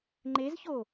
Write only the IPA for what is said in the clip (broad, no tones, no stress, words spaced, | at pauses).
ŋ͡ǃezço